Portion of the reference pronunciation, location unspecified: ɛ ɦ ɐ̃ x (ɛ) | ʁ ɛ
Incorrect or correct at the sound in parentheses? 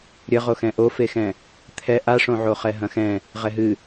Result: incorrect: ɛ̃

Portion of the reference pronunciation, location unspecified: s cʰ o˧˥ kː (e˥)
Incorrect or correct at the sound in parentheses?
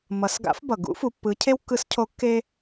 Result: correct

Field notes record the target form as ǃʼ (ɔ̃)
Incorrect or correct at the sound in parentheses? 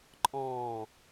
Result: incorrect: ɔ̃ː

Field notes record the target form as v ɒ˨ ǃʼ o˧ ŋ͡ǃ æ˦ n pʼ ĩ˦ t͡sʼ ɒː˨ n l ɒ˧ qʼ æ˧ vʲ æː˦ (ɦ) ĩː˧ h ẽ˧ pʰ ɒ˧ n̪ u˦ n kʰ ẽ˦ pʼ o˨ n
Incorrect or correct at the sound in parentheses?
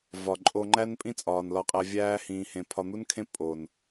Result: incorrect: h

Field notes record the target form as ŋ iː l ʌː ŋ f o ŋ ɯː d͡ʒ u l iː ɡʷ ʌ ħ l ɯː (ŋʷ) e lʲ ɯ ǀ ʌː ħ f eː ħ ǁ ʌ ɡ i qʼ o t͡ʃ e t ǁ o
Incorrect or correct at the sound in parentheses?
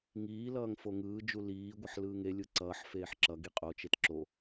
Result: incorrect: ŋ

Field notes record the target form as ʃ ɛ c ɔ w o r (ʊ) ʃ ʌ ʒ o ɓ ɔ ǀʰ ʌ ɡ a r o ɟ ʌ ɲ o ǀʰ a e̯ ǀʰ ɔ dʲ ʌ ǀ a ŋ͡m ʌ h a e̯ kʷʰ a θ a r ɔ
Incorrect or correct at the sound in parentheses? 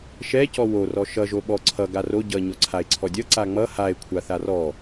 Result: incorrect: ɔ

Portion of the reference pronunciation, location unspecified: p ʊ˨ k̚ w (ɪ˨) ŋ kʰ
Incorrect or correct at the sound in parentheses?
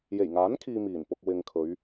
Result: correct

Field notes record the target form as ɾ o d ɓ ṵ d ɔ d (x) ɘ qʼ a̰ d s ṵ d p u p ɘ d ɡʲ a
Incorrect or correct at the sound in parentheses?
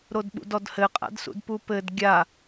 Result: incorrect: h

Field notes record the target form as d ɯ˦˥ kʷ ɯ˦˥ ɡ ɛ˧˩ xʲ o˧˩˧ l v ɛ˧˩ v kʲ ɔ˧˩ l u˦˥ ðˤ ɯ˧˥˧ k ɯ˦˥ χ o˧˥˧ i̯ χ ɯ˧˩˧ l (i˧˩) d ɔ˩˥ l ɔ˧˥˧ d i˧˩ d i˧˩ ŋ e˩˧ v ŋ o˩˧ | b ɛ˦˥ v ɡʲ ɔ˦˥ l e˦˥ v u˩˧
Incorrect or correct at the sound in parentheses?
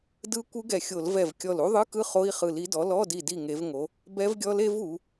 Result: incorrect: i˩˥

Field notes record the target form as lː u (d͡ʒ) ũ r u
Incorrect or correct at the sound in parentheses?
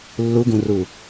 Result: incorrect: ɡ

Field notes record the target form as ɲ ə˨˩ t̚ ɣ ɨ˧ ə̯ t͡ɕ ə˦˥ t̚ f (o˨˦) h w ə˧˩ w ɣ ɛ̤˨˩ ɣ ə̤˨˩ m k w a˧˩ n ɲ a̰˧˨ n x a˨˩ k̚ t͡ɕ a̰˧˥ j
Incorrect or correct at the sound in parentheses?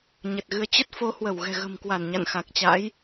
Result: correct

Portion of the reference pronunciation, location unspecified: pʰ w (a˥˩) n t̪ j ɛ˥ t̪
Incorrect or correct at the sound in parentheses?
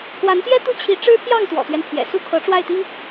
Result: incorrect: a˧˥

